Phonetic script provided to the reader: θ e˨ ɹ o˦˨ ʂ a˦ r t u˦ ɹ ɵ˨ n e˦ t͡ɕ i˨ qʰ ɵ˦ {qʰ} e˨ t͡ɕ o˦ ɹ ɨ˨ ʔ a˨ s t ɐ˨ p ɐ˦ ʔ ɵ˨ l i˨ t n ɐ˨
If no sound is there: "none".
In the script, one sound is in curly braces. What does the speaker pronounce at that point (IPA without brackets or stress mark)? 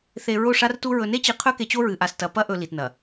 k